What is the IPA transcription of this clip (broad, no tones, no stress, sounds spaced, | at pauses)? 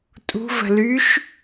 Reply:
tʼ ṳ v ə̤ l y ʃ